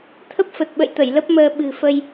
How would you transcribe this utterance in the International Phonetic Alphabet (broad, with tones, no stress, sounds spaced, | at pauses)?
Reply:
t̪ʰ ə˦˥ p̚ f ə˨˩ t̚ ɓ ə̰˧˨ j t̪ ə˧˩ j l ə˦˥ p̚ m əː˧ ɓ ɨ̤˨˩ f ə˧ j